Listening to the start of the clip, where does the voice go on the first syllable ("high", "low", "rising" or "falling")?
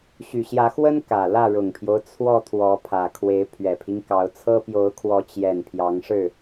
low